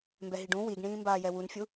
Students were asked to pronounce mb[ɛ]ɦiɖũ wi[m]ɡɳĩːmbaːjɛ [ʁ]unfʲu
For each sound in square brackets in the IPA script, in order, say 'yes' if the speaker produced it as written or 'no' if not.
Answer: yes, no, no

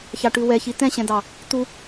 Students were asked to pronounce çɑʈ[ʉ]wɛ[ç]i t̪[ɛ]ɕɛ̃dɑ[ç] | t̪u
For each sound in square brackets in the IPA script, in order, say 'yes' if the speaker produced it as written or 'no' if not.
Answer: yes, yes, no, no

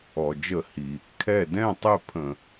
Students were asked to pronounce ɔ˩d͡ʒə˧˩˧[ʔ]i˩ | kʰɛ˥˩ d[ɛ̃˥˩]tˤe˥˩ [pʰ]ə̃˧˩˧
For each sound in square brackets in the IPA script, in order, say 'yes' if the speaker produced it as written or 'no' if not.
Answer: no, yes, yes

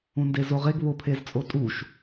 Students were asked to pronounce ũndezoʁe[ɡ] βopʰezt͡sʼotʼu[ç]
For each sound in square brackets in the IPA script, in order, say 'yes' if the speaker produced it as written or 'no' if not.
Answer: yes, no

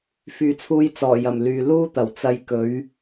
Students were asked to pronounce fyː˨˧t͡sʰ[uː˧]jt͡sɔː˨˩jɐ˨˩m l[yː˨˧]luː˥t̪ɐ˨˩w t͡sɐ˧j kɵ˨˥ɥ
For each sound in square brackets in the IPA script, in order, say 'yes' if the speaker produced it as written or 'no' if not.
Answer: yes, no

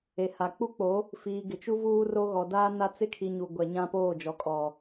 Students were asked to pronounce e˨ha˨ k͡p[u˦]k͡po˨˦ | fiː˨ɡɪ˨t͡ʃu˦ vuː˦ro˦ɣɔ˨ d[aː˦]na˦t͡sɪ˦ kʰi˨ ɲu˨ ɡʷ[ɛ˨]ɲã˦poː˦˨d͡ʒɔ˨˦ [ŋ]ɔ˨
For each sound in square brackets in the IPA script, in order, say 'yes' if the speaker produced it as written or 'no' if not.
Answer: yes, yes, yes, no

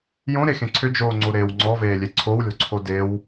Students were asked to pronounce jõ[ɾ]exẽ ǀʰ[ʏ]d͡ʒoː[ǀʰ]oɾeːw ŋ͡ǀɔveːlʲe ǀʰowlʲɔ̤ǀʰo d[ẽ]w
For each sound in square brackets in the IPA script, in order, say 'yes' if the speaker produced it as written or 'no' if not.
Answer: yes, yes, no, no

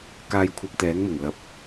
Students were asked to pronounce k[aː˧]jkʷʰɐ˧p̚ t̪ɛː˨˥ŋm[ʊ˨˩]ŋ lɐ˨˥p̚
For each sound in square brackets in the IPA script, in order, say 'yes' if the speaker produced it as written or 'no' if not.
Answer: yes, yes

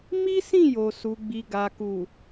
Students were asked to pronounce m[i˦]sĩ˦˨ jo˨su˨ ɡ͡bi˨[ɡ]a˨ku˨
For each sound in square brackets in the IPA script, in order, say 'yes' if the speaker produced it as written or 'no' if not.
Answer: yes, yes

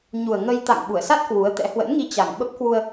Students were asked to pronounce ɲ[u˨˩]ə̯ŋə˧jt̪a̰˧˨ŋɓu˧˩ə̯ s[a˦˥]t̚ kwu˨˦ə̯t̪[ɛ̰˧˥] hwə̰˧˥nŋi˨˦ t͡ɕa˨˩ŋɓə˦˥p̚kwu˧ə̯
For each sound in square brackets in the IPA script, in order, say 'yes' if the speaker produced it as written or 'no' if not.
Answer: yes, yes, yes

